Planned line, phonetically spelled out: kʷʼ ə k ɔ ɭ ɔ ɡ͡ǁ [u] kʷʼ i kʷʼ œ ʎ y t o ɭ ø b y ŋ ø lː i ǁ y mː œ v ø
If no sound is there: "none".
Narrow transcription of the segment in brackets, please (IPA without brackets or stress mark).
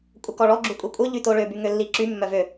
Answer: u